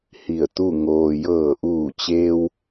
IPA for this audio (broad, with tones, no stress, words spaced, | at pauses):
hi˧˩ə̯t̪u˥˨ ŋoː˩jɤː˧˩ʔuː˧˩t͡ɕeː˧w